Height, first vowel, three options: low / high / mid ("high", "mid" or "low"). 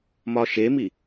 low